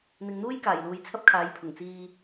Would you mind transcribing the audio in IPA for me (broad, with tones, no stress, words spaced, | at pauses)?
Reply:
n̪ɪ˨ŋn̪uː˥jkaː˨˩jluː˨j t͡sʰɐ˥p̚kʰaː˨˥jpʰʊ˨˩ŋ t͡siː˧